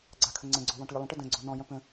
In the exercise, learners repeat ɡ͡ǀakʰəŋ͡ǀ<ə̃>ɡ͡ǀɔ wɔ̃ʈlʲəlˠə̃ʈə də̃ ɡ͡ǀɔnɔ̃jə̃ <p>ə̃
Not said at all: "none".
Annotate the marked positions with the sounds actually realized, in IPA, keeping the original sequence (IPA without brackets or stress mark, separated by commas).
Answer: ə̃, p